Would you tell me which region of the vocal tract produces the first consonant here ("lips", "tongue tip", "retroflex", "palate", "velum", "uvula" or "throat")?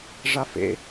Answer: retroflex